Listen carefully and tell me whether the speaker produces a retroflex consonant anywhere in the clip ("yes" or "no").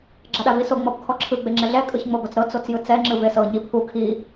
no